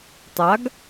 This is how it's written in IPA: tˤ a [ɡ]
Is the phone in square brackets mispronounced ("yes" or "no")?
no